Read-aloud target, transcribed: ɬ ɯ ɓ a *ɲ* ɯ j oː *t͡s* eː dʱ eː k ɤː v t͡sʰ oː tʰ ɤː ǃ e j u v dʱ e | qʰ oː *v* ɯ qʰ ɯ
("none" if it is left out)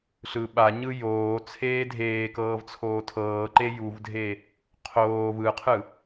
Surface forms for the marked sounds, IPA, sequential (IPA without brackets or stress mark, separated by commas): ɲ, t͡sʰ, v